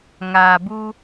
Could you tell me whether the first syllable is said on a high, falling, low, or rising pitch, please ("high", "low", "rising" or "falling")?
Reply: low